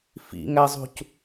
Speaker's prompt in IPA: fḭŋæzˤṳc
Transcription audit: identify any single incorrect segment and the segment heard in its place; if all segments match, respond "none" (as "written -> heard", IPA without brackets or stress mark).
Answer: none